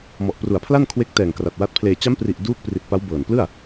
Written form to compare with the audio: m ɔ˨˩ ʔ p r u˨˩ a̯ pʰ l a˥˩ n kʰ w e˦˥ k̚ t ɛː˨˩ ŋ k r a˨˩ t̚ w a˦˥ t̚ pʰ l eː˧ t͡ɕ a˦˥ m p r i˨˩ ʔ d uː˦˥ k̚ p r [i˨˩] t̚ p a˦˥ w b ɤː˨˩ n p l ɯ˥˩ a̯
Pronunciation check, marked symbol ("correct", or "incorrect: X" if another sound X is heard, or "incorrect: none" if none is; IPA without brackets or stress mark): correct